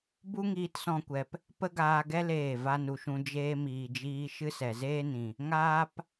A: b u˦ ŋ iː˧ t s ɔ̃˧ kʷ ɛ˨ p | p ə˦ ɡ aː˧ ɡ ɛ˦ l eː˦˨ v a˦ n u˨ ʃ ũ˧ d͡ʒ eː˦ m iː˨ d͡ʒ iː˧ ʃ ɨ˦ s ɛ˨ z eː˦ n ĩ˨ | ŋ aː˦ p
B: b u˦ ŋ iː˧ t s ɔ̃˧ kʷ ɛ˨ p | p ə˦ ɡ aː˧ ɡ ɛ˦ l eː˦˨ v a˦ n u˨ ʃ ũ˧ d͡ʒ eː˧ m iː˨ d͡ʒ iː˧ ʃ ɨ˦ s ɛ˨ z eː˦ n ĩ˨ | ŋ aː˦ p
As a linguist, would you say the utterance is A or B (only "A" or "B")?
B